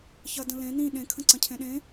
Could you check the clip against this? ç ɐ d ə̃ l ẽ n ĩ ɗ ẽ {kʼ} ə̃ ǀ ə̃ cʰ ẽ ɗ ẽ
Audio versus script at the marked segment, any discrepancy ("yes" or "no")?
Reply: yes